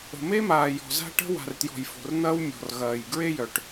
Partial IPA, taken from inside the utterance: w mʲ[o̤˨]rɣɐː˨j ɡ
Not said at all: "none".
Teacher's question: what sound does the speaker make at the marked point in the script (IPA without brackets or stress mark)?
ɔ̤˨